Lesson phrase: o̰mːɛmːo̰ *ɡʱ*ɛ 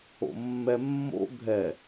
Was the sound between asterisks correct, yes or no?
yes